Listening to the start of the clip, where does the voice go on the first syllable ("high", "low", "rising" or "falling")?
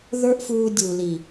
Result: high